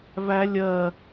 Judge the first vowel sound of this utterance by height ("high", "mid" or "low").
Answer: low